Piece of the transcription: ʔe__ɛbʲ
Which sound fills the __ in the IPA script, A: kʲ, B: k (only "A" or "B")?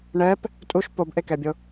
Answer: B